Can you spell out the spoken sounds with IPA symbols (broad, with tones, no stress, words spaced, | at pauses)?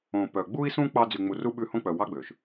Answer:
õ˨ pœ˨ɡ͡bu˥i̯sũ˥ k͡pɑ˦ d͡zy˨ŋ͡mu˨ru˥ ɓʉ˦hõ˥ k͡pœ˨wɑ˥ɡ͡bø˩ʃ